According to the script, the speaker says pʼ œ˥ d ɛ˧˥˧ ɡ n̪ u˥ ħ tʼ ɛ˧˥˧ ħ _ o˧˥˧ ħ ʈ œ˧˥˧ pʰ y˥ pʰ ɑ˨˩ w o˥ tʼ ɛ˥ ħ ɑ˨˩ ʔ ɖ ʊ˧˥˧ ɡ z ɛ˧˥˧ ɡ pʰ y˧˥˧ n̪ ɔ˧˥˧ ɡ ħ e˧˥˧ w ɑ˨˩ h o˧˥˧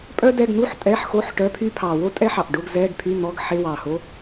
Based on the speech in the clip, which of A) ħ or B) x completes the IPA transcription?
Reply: B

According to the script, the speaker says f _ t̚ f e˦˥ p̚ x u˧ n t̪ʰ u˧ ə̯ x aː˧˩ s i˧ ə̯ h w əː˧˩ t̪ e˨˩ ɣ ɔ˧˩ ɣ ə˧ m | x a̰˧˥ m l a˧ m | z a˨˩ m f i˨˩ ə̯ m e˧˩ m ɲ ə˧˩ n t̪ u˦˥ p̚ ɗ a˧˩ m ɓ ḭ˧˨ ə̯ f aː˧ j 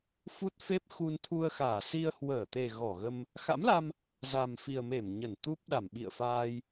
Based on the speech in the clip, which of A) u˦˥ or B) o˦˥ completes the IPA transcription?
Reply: A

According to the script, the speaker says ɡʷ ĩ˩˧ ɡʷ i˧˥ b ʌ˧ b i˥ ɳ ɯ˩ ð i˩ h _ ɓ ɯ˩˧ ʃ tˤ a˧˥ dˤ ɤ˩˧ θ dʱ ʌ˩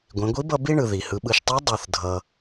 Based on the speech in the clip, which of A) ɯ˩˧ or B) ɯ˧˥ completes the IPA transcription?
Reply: A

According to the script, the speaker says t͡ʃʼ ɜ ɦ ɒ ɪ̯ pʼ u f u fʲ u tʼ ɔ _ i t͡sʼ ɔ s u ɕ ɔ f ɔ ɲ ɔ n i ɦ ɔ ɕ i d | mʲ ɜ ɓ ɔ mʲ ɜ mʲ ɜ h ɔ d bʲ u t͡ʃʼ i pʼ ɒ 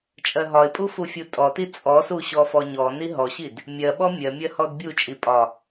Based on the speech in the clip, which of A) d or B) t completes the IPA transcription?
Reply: B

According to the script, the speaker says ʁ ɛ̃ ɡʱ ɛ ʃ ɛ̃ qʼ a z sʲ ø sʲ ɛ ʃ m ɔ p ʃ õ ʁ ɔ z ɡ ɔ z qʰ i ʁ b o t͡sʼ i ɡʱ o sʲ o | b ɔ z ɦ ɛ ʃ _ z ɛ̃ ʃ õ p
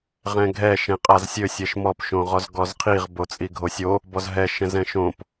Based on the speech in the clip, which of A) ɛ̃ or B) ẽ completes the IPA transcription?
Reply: A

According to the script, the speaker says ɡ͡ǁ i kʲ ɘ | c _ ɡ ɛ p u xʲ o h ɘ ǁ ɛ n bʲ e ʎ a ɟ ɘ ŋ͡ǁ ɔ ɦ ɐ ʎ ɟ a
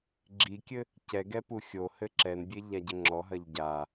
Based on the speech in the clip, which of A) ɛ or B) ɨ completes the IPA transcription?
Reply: A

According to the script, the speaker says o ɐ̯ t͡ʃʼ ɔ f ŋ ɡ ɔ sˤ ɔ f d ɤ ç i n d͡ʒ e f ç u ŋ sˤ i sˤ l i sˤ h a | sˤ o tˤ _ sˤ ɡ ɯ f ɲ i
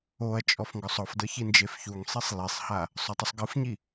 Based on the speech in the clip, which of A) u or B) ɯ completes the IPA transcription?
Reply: A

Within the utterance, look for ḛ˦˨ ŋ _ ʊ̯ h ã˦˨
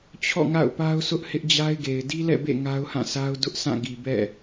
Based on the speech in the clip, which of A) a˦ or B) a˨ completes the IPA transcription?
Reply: A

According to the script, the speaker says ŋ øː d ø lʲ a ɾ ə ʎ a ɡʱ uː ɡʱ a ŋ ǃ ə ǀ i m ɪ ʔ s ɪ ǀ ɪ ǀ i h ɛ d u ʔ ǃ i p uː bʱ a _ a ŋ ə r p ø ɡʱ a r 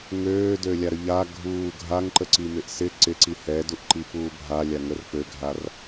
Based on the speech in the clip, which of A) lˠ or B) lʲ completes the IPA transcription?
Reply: B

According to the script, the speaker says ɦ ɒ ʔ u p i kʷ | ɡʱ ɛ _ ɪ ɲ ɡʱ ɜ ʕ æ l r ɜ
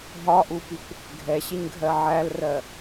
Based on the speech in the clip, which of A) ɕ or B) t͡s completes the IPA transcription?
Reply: A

